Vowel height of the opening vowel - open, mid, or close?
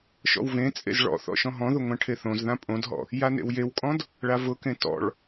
mid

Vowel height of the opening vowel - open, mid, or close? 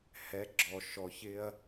mid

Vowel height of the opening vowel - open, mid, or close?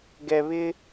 mid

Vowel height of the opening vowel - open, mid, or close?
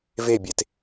mid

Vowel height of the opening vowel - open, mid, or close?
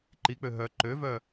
close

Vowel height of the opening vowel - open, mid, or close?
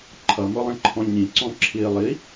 mid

